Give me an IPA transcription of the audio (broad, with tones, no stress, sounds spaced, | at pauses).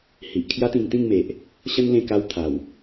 h i˨ ʔ kʰ j a˦ t̪ ĩ˧ ŋ t̪ ĩ˥˧ ŋ m e˨ ʔ | ɕ ə˦ n l ẽ˧ k a˧ w t̪ʰ a˨˩ w